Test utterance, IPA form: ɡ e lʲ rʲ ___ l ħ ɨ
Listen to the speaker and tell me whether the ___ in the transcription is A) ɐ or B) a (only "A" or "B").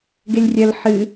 A